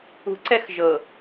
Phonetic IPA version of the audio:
ṳ ǀ ɛ x ʒ ɤ

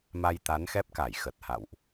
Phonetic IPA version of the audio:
m a˧ j t̪ a˨˦ n x ɛ˦˥ p̚ k a˧˩ j x ə˨˩ t̚ h a̰˧˨ w ʔ

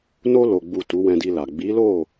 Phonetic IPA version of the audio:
n o˧ l o˨ ɡ͡b u˨ t u˨˦ w ɛ̃˧ d i˧ l a˨ ɡ͡b i˨˦ l o˦˨

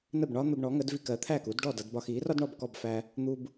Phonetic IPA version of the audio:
n ə˥˩ b ɳ ɒ˥ n̪ ə˧ b ɳ ɔ˩˥ ŋ ə˩˥ d v i˧ k ɜ˩˥ t̪ʰ æ˥˩ k u˩˥ d ɖ ɔ˥˩ d ʌ˧ d b ɒ˧ x i˩˥ r ɒ˥ d ɳ ɔ˥˩ b k ɔ˥˩ b f æ˧ | n̪ u˧ b

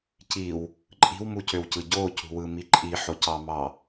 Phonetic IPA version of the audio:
c i w | ǃʼ i̤ w m u c ø w c ɯ ɟ o c ṳ w ɯ m i ǃʼ i ħ o c ɑ m ɑ

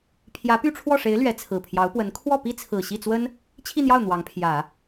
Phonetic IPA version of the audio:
pʰ j ä˧˥ p y˥˧ ʈ͡ʂʰ w ɔ˥˩ ʂ e˧˥ ɪ̯ l ɥ ɛ˧˥ t͡sʰ ɹ̩˨˩ pʰ j ɑ˧˥ ʊ̯ p w ə˧˥ n kʰ w ɔ˥˩ p i˥ t͡sʰ ɹ̩˨˩ ɕ i˥˩ t͡s w ə˥ n | t͡ɕʰ i˥˧ n̪ j ɑ˥˩ ʊ̯ n̪ w ɑ˧˥ ŋ pʰ j ä˨˩˦

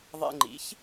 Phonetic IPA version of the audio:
ðˤ ḛ˧ ŋ͡ǃ ḭ˩˥ ç

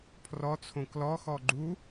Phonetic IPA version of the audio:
pʰ r ɔ t͡sʰ õ k l ɔ x ɔ ɡ͡ǃ u

